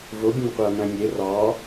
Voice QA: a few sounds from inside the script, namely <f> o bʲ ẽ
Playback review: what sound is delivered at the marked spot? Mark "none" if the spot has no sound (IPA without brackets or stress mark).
v